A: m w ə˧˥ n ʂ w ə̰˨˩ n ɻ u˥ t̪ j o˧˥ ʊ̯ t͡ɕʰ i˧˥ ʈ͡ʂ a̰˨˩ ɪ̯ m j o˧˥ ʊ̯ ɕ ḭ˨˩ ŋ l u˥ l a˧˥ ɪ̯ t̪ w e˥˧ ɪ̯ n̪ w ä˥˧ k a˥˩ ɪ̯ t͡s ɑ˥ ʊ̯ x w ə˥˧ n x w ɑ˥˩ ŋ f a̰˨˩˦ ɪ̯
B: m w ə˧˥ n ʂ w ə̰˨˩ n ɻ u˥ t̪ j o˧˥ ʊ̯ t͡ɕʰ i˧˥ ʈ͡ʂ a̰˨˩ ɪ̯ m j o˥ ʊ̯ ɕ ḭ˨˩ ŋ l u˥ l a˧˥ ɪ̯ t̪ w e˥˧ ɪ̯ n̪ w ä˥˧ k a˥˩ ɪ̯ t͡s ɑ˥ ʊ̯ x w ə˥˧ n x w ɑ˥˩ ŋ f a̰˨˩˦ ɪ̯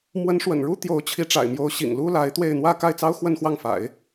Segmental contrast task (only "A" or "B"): A